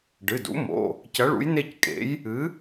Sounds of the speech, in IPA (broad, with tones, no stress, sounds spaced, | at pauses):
ɖ ɨ˩˧˩ d ṵ˨˥ m o̰˩˧˩ | c ɐ˨˥ ɭ ṵ˨˥ j n e˦˨ c kʼ ḛ˨˥ j | ɨ˨˥